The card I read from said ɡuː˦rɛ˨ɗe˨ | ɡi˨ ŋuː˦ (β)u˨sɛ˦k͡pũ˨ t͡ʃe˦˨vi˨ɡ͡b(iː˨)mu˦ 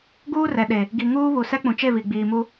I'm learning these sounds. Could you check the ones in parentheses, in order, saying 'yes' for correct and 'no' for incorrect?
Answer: yes, yes

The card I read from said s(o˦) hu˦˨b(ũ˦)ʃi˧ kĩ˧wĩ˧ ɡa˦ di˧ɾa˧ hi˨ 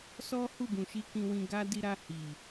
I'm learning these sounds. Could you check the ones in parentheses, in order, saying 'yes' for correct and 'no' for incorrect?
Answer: no, no

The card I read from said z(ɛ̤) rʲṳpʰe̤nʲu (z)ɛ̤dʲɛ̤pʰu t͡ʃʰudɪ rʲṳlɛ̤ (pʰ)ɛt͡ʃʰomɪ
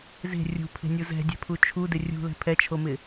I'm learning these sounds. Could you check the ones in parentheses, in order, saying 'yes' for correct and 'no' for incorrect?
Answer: no, yes, yes

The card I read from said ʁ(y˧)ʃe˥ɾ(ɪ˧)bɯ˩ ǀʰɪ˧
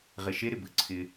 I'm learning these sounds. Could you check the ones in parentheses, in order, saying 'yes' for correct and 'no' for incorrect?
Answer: no, no

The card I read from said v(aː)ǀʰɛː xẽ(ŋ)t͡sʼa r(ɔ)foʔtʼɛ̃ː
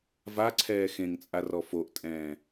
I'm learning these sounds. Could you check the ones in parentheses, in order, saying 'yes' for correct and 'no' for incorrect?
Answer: no, yes, yes

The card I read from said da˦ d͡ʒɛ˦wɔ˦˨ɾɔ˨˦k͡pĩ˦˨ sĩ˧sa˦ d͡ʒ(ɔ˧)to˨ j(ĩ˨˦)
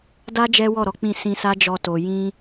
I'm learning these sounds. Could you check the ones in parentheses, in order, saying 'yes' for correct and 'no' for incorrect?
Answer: yes, no

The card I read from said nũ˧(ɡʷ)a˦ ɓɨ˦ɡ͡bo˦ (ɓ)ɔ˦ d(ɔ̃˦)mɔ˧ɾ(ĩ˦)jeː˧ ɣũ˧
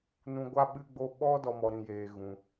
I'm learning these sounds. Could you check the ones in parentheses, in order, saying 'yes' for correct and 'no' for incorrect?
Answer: yes, yes, no, no

